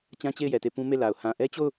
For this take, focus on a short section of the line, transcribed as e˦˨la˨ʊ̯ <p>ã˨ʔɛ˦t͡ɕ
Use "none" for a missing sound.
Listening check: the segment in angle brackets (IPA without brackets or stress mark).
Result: h